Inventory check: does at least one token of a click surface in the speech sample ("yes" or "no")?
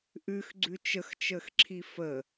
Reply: yes